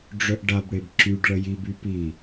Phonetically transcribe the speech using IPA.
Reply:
ɖ͡ʐœʔɖabɽeb ǁyɖ ɭəjib ypi

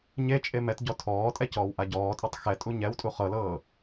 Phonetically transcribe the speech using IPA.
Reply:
ɲet͡ʃʼe mɛt ɟɔtʰɔːtʼɛ cɔːwʔaɟɔːtʼɔtˤ xɛtʼu ɲɛwtʼu χɤlɤː

